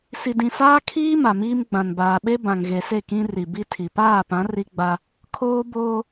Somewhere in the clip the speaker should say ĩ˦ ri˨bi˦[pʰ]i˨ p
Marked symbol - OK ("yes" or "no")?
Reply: no